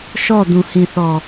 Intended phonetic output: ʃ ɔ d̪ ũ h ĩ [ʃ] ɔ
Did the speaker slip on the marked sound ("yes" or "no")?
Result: yes